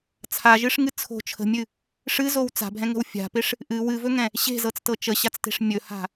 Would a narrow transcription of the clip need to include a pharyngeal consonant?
no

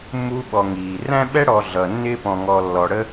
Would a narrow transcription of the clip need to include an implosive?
yes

